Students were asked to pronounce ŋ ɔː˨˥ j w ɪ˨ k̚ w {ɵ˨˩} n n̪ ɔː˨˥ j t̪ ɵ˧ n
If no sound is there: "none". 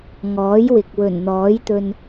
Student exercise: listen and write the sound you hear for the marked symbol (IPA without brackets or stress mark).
ɵ˨˩